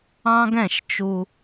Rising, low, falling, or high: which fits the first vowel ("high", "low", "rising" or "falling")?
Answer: high